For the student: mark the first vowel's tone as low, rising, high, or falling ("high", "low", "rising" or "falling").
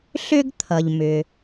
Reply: high